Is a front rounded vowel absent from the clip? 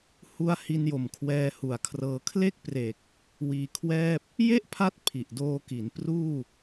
yes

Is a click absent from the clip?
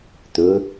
yes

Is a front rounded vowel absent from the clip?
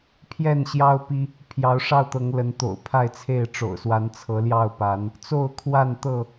yes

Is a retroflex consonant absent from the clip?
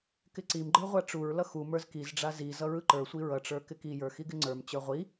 no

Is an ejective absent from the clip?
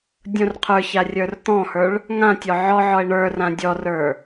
yes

